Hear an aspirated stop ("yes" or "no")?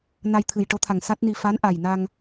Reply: yes